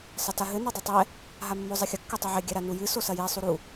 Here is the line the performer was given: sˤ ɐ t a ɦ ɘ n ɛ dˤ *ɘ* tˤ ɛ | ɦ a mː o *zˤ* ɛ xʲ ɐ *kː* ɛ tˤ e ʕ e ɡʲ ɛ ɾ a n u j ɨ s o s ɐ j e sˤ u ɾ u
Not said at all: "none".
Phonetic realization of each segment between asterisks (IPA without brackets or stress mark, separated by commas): ɘ, zˤ, kː